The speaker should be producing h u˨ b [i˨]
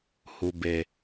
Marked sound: incorrect: e˨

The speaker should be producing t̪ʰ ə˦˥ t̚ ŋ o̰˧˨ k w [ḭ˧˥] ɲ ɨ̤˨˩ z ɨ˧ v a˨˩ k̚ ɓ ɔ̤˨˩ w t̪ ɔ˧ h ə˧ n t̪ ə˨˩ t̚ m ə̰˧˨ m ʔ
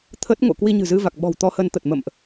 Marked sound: incorrect: i˧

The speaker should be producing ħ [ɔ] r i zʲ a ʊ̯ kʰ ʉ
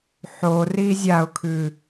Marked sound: incorrect: o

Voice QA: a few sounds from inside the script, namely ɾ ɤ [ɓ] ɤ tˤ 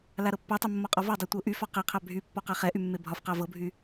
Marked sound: incorrect: pː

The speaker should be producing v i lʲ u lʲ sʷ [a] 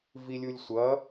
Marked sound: incorrect: ʌ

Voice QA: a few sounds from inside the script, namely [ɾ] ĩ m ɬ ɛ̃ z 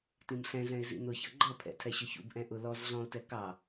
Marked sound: incorrect: t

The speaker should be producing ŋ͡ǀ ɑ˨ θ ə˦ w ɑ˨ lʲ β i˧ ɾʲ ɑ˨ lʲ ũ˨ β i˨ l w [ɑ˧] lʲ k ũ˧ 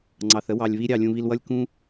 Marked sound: incorrect: ʌ˧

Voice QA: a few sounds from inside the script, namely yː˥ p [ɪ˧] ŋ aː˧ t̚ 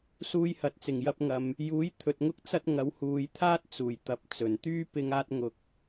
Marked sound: correct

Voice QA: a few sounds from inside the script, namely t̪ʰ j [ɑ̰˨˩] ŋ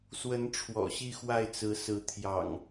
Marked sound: correct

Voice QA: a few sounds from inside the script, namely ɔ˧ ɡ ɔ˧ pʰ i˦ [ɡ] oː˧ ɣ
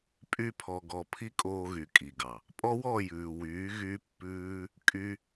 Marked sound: incorrect: kʼ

